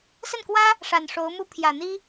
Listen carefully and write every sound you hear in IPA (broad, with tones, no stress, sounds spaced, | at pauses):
s ə˥˩ n k w ä˥ | ʂ a˨˩ n ʂ o˧˥ ʊ̯ m u˥ pʰ j ä˨˩ n̪ i˥